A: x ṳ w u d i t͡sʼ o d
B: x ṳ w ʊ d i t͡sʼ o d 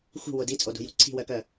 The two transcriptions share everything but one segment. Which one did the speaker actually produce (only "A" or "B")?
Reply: B